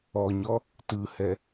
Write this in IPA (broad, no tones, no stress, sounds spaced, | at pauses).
ɔ ɲ ɔ | t ɯ h ɛ